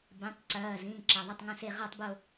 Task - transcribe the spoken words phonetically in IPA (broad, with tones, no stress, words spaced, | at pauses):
bẽ˩˧˩tˤ ǀɐː˩˧˩zĩ˩˧˩ ǁɐ˩˧˩ðˤɐ˦˨tˤŋɐ̃˦˨se˦˨ ʁa˦˨tˤbo˦˨